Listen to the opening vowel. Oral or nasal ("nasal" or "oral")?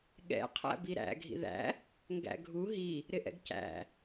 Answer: oral